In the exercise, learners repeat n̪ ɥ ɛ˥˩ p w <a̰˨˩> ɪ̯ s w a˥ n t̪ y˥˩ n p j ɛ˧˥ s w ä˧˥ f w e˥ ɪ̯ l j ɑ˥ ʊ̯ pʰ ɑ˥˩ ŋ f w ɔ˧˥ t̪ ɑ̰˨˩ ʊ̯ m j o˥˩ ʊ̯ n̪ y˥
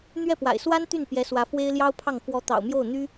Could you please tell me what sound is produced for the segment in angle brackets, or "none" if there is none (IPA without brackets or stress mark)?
a̰˨˩